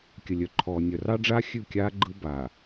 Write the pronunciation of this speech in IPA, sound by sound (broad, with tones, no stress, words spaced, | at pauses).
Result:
kʲə˨lʲœ˨ǃʰɔː˨ nʲœ˨rɑ˦ɖ͡ʐa˦ xʲʉ˦˨kʲaː˦ ɡ͡ǃɯ˦ baː˨